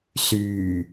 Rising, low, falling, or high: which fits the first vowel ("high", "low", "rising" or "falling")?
low